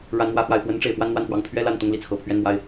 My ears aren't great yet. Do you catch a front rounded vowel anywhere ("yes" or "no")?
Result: no